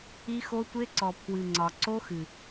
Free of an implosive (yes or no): yes